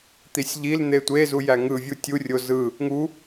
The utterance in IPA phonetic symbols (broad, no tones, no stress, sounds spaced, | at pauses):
t̪ i sʲ ʎ i l n̪ e tʷ e z u j æ ŋ ɯ vʲ u tʲ u rʲ o z ɯ | ŋ u